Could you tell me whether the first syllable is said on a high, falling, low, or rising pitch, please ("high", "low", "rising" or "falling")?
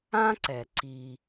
high